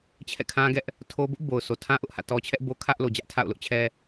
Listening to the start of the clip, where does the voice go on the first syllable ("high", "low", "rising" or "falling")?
falling